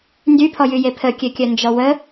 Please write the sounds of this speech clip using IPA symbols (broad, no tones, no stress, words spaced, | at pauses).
ndypʰɔjyje pʰəkʲøkʲœ nd͡ʒɔwə